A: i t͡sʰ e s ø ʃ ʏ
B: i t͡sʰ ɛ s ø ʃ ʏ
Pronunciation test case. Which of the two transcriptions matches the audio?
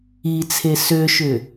A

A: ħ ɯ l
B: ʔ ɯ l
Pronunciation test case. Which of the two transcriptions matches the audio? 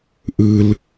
B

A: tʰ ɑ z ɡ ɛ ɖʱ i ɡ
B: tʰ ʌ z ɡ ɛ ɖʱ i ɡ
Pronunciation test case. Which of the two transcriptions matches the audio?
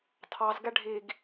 A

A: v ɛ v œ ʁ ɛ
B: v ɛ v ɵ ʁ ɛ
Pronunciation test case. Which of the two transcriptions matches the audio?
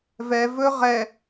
B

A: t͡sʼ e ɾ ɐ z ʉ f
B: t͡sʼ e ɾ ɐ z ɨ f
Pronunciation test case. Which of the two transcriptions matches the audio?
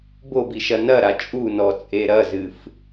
B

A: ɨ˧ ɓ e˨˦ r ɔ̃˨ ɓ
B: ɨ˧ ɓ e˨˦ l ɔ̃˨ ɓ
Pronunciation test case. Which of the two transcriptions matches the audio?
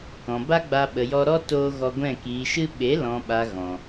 B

